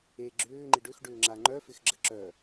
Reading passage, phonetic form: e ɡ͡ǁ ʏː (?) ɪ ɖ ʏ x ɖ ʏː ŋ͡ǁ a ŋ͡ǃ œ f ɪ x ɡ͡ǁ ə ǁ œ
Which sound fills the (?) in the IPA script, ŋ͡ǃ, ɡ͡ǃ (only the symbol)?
ŋ͡ǃ